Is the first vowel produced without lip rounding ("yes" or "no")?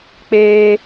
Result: yes